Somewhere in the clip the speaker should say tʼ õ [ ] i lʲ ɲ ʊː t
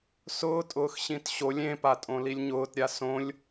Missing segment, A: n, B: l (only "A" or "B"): B